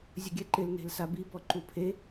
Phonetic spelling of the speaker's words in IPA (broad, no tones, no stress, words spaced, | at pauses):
zʲʊɡʲɛǃɪl ne̤lsabi bɔǃupʰe